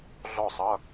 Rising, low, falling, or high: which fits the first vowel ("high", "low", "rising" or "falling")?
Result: falling